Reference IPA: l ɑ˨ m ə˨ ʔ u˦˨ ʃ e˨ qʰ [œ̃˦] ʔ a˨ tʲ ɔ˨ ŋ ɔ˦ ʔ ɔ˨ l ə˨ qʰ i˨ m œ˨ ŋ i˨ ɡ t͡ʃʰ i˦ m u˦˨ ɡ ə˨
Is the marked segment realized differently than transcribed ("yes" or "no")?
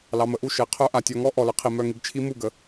yes